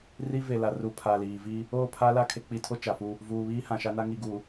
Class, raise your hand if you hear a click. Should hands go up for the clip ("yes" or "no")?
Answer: no